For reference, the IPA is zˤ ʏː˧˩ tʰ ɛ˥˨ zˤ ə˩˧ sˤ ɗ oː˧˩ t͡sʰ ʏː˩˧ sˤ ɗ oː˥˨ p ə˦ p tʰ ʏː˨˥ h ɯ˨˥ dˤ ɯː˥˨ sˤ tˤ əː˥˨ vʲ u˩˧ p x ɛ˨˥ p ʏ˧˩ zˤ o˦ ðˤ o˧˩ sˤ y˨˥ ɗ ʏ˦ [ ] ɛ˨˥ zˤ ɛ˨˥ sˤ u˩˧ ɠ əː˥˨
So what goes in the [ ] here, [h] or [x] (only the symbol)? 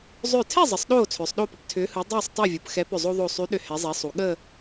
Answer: h